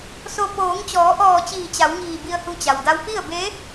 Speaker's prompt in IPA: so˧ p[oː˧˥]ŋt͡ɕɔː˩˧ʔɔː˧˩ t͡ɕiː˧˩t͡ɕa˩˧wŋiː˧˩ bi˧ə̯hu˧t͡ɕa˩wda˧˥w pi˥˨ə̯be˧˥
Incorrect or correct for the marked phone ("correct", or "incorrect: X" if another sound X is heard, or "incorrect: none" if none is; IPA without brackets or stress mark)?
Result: incorrect: oː˩˧